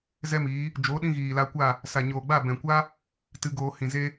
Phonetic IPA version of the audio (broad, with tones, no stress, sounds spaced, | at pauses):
z ɛ˦ m iː˨˦ | d͡ʒ oː˨˦ ɗ ĩ˧ ɣ iː˨ l a˧ kʷ a˦˨ | s a˨ ɲ oː˨ ɡ͡b a˦˨ b ɛ̃˨ kʷ a˦ | t ɨ˧ ɡ oː˧ h ĩ˨ z e˦